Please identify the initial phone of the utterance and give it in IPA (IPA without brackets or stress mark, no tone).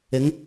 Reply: ɪ